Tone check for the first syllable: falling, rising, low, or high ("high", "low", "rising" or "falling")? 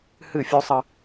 falling